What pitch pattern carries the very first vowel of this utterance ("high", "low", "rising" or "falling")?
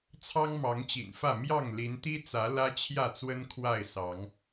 high